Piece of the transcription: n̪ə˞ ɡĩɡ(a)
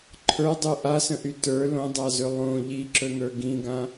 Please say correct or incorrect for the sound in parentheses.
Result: incorrect